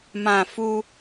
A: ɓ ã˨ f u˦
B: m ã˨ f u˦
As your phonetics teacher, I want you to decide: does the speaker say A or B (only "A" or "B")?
B